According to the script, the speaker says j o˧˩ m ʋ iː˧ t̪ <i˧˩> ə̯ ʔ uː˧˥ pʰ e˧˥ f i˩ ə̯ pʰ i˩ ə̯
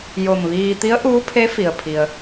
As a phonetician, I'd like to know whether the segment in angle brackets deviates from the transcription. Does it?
yes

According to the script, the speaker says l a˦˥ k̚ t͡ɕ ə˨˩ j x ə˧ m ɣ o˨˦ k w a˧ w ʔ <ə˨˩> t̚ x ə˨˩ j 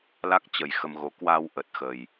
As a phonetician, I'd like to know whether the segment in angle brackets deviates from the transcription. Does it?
no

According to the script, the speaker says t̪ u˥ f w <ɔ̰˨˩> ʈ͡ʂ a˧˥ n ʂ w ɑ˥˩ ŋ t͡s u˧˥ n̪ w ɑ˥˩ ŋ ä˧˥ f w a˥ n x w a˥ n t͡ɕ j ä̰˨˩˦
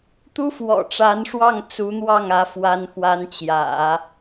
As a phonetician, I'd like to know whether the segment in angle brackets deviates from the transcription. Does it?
no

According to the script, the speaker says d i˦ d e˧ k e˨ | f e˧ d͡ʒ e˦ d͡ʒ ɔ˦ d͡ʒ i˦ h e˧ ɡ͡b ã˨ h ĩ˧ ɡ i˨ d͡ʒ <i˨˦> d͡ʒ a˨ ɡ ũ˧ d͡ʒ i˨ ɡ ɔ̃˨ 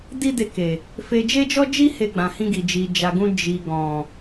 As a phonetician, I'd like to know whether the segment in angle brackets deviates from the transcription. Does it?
yes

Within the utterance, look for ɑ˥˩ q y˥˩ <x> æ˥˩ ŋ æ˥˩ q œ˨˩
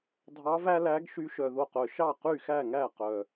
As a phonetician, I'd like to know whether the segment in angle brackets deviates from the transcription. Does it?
no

